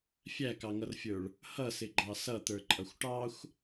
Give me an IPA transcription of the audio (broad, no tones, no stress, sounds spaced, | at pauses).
fʲ æ k ɑ ŋ ʌ r fʲ ə˞ ɭ | h ʌ s ɪ ɡ͡ǃ ɑ s ʌ t̪ ə˞ ǃʼ ʌ xʷ ʈ ɑ xʷ